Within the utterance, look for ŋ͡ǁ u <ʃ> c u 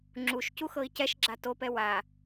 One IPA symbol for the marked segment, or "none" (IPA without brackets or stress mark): ʃ